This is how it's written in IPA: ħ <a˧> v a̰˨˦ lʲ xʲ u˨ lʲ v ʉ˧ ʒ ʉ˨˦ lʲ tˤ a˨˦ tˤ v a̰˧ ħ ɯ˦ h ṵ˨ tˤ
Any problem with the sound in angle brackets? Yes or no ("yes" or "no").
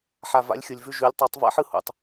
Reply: yes